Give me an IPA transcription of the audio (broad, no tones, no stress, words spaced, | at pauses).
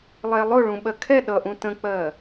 lˠɛlˠʊ ɭũɓɜkʰɛ ɗʌʔũ tə̃k͡pɜ